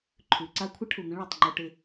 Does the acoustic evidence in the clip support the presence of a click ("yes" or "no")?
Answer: yes